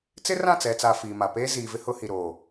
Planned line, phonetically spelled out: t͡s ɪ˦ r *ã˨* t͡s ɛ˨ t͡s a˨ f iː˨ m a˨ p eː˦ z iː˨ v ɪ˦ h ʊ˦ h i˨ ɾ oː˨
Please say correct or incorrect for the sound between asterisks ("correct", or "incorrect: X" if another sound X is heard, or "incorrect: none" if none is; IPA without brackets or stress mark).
incorrect: ã˦˨